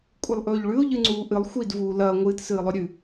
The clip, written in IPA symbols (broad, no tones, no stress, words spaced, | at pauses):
kʷʼɨlˠʔɵːʎɭʉʊ̯ ʎɨŋ͡ǀuːʔɨlˠ xʷidvuː lɐː ŋʷɨːtsɨːlˠɵ ɾʲʉ